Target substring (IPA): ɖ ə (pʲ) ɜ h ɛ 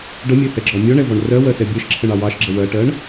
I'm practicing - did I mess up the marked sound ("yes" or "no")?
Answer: yes